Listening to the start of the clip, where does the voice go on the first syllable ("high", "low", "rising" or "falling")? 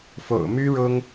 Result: low